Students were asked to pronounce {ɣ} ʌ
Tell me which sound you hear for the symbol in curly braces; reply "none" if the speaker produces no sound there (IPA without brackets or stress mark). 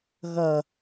ɣ